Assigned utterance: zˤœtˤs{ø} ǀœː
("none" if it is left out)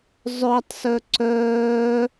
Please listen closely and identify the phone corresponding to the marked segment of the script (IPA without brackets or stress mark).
œ